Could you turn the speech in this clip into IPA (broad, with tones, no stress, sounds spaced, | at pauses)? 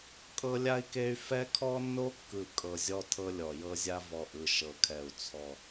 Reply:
kʼ ɤ˦ lʲ a˦ i̯ k e˦ y̯ f ɛ˦ kʰ ɔ˦ nː o˦ kː ɯ˨˩ kʼ ɤ˨˩ zʲ ɔ˦ tʰ ɤ˦ lʲ ɔ˨˩ j ɤ˦ zʲ a˦ v ɔ˨˩ ʔ ɯ˨˩ ʃ ɤ˨˩ kʰ ɛ˨˩ u̯ t͡sʰ ɔ˨˩